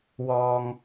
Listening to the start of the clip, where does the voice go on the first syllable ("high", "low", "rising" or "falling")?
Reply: high